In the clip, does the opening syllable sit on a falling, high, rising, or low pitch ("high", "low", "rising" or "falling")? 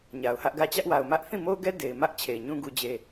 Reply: low